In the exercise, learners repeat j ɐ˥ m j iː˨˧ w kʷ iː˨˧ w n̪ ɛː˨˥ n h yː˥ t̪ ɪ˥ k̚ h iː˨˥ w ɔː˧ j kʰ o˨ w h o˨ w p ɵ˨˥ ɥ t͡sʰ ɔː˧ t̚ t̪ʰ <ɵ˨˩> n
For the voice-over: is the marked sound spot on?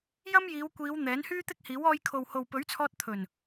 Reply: yes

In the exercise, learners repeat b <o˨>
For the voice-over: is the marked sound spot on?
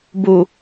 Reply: no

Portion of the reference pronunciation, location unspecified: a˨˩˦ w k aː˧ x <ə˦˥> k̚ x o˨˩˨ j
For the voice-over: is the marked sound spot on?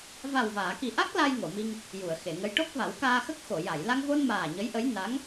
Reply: yes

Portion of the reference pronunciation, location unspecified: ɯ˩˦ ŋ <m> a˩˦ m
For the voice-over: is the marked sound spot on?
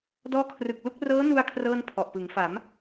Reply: no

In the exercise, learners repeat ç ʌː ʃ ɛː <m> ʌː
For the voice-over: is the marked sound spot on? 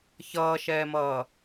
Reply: yes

